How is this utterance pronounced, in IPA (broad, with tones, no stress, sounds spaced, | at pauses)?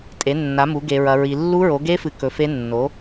tʼ e˩˥ nː a˩˥ m u˩˥ ɡ e˦˥ ɹ ɐ˦˥ ɹ i˦˥ lː u˦˥ ɹ o˩˥ ɡ e˦˥ f ɨ˨ k ɵ˩˥ f e˦˥ nː o˩˥